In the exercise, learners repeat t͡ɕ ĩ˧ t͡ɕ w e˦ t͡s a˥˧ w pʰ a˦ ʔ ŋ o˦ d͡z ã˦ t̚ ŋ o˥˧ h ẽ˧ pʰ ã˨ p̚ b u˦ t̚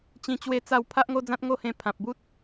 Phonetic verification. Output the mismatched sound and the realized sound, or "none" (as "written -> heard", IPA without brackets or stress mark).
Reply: none